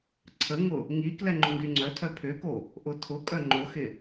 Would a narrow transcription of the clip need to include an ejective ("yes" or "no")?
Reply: yes